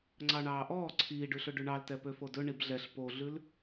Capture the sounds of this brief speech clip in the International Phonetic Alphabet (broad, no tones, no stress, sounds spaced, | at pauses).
ŋ͡ǀ ɑ ɳ ɑː ʔ ɔː ǀʰ iː ɖ ʉ ɬ ɵ ɖ ʉ ɳ ɑ l t ɛ p ø f o d ɵ ɳ i b ɮ ɛ ɬ p o ɮ ʉ l